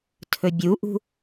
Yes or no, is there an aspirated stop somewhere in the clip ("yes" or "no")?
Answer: yes